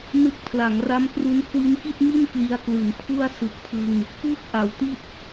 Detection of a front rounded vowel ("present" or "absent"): absent